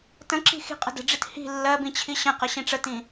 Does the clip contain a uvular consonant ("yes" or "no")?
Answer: yes